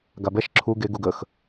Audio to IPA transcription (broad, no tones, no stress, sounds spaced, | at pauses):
ɡ a b ɛ ʃ ǁʰ u ɡ e ɡ u ɡ ə x